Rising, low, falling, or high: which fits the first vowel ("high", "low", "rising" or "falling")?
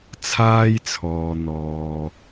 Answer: high